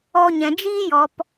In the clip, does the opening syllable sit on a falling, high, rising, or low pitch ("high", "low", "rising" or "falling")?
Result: high